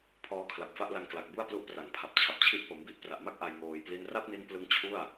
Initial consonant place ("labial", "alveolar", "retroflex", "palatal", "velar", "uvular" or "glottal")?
labial